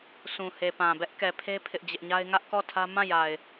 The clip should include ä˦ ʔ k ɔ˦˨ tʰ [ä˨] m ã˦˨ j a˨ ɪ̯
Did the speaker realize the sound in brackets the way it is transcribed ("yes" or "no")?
no